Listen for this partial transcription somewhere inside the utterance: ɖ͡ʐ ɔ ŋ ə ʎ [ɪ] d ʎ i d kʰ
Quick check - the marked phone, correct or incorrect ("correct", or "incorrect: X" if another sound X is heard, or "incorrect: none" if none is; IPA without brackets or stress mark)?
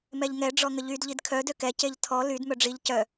incorrect: y